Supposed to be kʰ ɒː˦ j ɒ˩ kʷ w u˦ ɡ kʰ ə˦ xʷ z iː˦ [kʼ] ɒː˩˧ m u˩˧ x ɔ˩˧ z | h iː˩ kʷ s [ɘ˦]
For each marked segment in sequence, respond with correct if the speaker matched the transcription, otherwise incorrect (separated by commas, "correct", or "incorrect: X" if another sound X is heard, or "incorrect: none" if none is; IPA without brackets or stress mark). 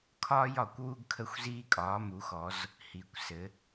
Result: correct, incorrect: ɘ˩˧